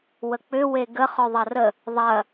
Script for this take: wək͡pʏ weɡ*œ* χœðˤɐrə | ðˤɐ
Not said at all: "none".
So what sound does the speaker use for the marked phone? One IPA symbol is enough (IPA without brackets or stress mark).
ə